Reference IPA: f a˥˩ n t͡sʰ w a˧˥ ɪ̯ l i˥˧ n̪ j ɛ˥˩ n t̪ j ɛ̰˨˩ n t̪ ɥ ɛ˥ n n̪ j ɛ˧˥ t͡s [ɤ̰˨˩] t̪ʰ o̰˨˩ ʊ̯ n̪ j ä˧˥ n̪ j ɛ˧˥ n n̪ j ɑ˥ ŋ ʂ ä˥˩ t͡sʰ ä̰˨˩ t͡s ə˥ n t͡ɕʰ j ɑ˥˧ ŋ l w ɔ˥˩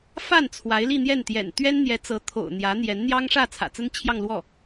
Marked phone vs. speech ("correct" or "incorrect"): incorrect